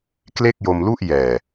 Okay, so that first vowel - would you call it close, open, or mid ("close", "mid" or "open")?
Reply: mid